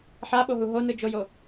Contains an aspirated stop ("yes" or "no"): no